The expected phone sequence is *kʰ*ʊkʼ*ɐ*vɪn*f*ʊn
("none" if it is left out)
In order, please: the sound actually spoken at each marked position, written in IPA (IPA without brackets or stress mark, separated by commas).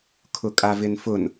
kʰ, a, f